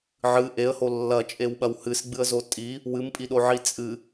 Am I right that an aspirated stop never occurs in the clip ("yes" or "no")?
yes